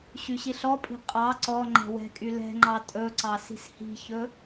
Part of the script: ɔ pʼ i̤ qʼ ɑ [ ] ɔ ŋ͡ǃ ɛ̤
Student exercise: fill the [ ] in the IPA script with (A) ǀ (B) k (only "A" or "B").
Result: A